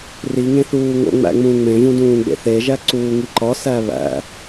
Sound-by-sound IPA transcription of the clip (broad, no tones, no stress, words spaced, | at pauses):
ri ŋẽθuːŋo̰ŋ͡mæ̰ ŋ͡mũːŋ͡mẽvũ dũːɡ͡bḛθeʒæ ǀuːŋiǃɒsæ βæ̰